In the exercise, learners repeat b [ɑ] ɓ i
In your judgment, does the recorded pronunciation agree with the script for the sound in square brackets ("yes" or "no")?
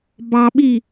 yes